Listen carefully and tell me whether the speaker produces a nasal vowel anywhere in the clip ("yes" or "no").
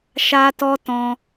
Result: yes